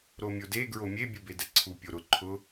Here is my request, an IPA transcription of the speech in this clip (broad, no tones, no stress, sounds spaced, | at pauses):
ɾ o mʲ o d e ɡ ɹ o mʲ e bʲ u b e d ɛ ǀʰ u pʲ o ɾ ʊ ǃʰ ʊ